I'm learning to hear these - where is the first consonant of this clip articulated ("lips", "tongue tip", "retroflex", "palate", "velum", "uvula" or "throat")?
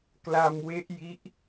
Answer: velum